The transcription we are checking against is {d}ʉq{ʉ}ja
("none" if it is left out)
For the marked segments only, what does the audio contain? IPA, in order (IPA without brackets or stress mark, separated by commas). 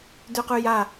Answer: d, ʉ